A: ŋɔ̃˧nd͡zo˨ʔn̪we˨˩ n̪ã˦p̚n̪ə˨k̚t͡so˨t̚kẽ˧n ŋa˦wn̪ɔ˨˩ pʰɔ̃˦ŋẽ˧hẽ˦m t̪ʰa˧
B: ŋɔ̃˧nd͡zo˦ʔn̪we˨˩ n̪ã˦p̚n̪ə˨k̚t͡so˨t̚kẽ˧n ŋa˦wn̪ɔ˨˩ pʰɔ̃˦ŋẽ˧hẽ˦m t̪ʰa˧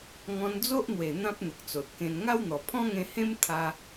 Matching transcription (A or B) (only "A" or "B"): B